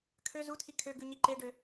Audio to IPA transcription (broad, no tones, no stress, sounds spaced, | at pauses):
kʰ ø z u tʰ i kʰ ø ɡ ʉ ɲ i ǃ e ɖ ø